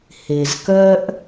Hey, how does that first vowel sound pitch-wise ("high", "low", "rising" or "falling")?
low